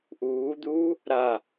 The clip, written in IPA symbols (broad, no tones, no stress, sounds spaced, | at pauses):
ʔ uː d̪ uː | ɾ a